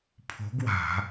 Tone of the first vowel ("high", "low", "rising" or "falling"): rising